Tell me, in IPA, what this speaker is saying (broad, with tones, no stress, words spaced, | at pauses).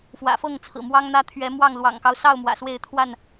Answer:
fwä̰˨˩fɤ˥˨ŋt͡sʰɹ̩˨˩ mwɑ˦ŋn̪ä˦t̪ʰɥɛ˨˦mwɑ˥˨ŋ lwɑ̰˨˩ŋkɑ˦ʊ̯sɑ˥˨ʊ̯ mwä̰˨˩swe˥˨ɪ̯ t̪ʰwa˥˨n